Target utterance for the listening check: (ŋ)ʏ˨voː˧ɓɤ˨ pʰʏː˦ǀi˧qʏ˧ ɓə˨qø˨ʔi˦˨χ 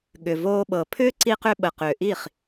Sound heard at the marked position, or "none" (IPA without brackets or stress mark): ɠ